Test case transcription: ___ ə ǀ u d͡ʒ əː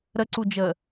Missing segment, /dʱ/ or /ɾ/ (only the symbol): ɾ